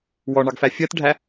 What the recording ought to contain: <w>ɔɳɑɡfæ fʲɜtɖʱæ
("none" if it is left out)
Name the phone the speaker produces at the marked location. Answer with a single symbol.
w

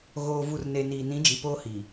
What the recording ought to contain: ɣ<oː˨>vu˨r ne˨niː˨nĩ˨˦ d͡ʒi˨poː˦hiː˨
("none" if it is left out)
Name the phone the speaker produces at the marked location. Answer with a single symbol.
oː˨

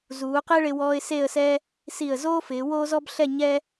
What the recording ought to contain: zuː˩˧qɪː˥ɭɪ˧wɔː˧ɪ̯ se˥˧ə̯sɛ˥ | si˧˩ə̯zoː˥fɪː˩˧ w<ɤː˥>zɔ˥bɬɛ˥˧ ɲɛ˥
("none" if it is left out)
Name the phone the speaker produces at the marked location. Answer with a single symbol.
oː˥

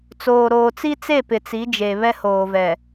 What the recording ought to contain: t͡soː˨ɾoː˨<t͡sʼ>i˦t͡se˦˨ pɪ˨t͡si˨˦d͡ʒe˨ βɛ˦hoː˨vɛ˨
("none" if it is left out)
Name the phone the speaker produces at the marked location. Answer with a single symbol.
t͡s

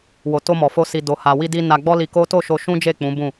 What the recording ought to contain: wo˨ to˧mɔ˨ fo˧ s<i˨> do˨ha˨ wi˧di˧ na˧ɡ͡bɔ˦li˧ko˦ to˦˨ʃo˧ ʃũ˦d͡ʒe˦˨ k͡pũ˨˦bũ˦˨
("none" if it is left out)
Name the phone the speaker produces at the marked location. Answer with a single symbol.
i˨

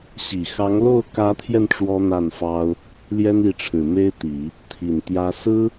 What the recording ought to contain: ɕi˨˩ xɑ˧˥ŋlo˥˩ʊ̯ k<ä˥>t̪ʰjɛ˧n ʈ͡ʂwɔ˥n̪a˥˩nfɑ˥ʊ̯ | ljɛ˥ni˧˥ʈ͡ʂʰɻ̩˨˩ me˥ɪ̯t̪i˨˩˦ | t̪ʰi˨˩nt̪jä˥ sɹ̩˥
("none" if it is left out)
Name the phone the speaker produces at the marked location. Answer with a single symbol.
ä˧˥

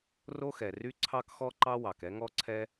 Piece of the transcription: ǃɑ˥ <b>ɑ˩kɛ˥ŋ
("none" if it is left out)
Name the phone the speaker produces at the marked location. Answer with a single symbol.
w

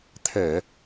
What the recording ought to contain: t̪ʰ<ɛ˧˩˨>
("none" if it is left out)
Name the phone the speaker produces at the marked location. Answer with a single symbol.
ɛ˧˩˨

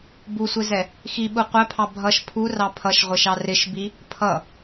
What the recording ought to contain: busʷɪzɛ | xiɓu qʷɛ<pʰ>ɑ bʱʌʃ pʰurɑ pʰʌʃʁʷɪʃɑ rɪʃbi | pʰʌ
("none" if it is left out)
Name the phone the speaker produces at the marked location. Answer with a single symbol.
pʰ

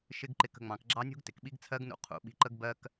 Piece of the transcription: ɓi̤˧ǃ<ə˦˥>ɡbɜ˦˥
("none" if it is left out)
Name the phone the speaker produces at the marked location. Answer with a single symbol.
ə˦˥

